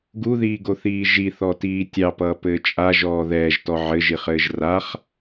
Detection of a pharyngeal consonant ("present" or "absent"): present